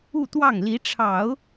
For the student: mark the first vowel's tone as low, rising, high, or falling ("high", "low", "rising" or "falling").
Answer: falling